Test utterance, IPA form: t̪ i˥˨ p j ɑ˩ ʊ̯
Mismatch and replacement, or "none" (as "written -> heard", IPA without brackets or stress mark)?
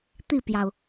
none